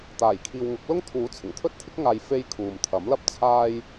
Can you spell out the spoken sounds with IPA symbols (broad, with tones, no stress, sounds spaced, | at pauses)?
t̪ aː˨˩ j kʰ iː˨ w ŋ ʊ˨˥ k̚ l ʊ˥ ŋ t̪ʰ uː˨˥ t͡sʰ ɪ˨˩ ŋ t̪ʰ ɵ˥ t̚ t̪ʰ ɪ˥ k̚ ŋ aː˨ j f e˧ j kʰ uː˨ m t̪ʰ ɐ˨˥ m l ɐ˧ p̚ t͡sʰ aː˧ j